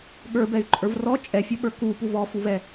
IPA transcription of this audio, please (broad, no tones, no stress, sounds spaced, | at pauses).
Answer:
ɠ ə˞ b ɛ y̯ ǃʼ ə˞ v r ɔ t͡ʃʼ ɛ fʲ ʌ ɓ ə˞ k u p u v ɔ f u v ɛ